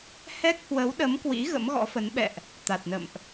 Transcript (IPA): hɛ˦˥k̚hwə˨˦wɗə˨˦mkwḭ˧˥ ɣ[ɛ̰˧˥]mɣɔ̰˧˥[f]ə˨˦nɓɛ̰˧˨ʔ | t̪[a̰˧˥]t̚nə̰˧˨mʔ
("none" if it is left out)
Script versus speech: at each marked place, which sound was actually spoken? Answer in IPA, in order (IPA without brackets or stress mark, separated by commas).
ə̰˧˥, f, a˨˩